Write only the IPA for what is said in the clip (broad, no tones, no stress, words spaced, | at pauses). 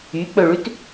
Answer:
yk͡pɵɭʉt